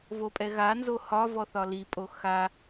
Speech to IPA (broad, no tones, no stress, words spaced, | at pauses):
vopʼɛɣanzo hɒ vɔθɒlipʼo xa